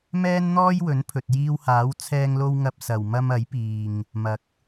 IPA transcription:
m ɛː˥ n n̪ ɔː˥ j w ɵ˨˥ n pʰ ɵ˨ t̚ j iː˧ w h aː˨˥ w t͡sʰ ɛː˧ ŋ l o˧ w ŋ ɐ˧ p̚ s ɐ˨ w m ɐ˧ m ɐ˨˥ j p iː˨ ŋ | m ɐ˨˥ k̚

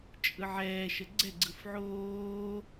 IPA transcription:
t͡ʃʼ ɯ ʕ ɛː ʃ ə ɡ͡ǀ ɛ ɡ͡ǀ ɯ f ʕ oː

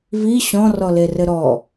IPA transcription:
v i ɕ ɔ̃ r ɔ l e r ɘ ɾ ɔ

